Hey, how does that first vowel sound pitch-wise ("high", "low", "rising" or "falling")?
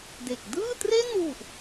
low